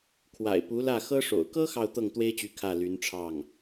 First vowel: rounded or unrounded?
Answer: unrounded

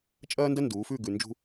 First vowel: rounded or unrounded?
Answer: unrounded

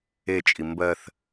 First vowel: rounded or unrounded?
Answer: unrounded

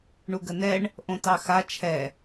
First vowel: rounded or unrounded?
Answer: rounded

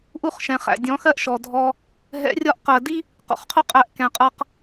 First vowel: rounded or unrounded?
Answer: rounded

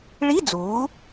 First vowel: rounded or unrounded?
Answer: unrounded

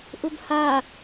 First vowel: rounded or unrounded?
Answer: rounded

